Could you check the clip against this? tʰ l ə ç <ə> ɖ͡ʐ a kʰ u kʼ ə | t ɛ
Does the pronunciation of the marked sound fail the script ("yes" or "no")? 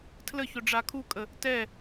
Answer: yes